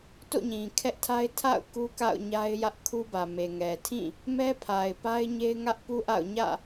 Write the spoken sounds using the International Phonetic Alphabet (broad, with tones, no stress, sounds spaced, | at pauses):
t o̰˦˨ ɲ ĩ˨ kʰ ɛ˦ ʔ tʰ a˦ ɪ̯ tʰ a̰˦˨ ʊ̯ k u˦ k a̰˦˨ ʊ̯ ɲ a˦ ɪ̯ j ä˦ ʔ kʰ u˦ b ä˨ m e˨ ŋ ɛ˨ tʰ ĩ˦˨ | m ɛ˦ pʰ a˨ ɪ̯ p a˦ ɪ̯ ɲ e˦ ɪ̯ ŋ ä˦ ʔ p u˦ ʔ a̰˦˨ ʊ̯ ɲ ä̰˦˨